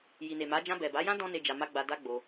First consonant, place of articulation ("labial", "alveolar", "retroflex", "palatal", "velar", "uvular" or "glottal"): palatal